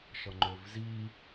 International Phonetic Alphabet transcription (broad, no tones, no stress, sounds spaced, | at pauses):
ʃ ʌ ŋ͡ǃ ø v z i